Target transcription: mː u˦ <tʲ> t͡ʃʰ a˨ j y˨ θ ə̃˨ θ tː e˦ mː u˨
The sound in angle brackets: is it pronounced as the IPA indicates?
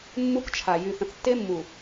no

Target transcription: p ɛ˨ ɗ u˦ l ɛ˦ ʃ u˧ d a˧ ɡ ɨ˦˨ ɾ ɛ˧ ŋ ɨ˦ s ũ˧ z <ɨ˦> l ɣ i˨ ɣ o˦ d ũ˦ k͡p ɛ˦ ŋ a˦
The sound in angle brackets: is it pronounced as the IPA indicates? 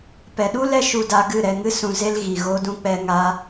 no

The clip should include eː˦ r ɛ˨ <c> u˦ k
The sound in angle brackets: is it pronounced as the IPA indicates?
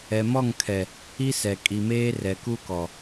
no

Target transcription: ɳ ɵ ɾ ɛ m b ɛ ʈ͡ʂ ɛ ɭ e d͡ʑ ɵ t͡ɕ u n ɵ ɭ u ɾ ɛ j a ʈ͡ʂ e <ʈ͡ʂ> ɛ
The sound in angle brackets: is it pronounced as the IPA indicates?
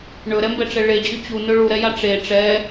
yes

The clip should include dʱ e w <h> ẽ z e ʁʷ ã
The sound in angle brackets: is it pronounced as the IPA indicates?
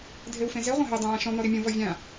no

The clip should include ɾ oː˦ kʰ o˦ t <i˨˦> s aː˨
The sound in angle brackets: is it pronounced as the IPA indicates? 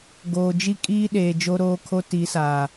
yes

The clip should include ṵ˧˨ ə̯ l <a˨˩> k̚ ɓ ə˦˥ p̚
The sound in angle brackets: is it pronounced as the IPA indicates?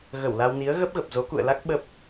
no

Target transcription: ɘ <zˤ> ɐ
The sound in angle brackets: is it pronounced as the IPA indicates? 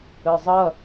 yes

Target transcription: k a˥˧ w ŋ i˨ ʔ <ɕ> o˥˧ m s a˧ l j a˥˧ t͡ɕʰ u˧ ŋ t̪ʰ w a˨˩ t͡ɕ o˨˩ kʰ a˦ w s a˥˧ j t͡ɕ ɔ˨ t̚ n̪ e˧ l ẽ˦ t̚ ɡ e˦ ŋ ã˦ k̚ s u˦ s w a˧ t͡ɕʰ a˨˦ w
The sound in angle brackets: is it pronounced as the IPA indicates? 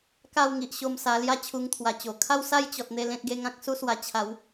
yes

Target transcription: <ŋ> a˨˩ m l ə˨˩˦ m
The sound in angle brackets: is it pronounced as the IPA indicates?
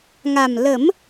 yes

